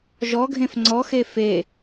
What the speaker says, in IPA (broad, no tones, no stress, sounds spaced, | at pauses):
ʒ ɔ ɡʱ ẽ f ŋ͡ǀ ɔ x e f e